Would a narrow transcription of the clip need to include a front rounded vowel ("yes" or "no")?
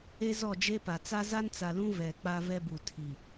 no